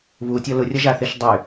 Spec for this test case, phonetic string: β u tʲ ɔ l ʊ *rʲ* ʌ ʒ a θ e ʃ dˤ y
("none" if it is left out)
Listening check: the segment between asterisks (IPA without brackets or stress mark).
rʲ